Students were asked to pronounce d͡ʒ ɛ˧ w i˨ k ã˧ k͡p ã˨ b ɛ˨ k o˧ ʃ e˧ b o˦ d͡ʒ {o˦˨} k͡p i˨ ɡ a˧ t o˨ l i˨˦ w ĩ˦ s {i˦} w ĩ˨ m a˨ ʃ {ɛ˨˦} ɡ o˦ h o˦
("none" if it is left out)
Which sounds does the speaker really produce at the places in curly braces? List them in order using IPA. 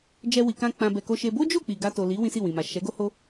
o˦˨, i˦˨, ɛ˨˦

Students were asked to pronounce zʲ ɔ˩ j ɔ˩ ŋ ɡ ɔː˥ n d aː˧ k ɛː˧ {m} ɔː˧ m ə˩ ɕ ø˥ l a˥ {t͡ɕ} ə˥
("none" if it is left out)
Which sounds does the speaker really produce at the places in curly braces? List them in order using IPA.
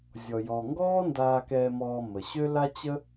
m, t͡ɕ

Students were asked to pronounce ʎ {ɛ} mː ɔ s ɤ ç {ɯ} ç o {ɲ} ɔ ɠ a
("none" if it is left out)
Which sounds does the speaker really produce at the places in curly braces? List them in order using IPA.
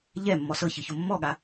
ɛ, ɯ, mː

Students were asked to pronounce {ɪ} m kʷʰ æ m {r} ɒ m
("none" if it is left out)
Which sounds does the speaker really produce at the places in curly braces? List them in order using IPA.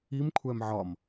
i, ʕ

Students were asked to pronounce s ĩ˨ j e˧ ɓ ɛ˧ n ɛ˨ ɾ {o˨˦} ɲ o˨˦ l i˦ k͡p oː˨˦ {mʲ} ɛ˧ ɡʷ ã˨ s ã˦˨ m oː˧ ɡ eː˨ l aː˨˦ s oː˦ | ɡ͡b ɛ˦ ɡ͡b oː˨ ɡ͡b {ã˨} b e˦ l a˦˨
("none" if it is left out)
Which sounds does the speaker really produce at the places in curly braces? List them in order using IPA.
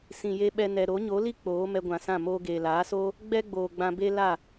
o˨˦, m, ã˧

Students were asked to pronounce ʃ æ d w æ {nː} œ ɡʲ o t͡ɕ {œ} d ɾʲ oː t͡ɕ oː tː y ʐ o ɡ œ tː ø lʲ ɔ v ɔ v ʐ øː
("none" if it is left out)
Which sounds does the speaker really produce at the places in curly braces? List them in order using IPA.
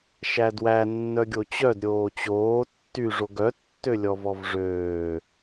nː, œ

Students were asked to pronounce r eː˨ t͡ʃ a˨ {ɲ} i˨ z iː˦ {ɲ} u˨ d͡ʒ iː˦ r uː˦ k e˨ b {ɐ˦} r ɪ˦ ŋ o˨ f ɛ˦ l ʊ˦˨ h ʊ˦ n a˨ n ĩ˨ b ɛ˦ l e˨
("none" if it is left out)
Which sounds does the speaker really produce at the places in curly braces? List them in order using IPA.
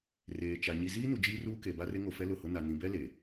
ɲ, n, a˦

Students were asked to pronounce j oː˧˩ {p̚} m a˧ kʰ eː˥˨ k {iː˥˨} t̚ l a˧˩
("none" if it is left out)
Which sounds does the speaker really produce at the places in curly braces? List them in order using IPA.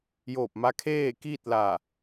p̚, iː˥˨

